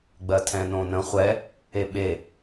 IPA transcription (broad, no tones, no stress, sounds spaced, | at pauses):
ɡ͡b ɜ tʰ ɛ̃ n õ n ə̃ χʷ ɛ | e ɓ e